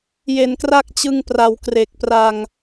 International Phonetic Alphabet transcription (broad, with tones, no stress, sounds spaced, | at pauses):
j e˨˩ n k r a˥˩ k̚ t͡ɕ ɯ˧ ŋ p r a˨˩ w k r e˨˩ k̚ p r a˧ ŋ